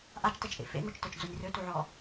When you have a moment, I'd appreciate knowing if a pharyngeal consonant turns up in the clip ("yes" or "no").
yes